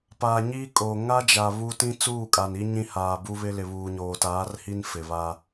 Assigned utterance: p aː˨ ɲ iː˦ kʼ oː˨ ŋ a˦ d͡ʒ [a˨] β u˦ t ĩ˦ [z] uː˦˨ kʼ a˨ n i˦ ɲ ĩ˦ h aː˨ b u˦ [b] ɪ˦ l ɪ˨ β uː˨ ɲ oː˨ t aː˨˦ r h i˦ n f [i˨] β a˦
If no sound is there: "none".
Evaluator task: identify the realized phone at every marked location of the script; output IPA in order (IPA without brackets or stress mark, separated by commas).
a˨, t͡s, β, ɪ˨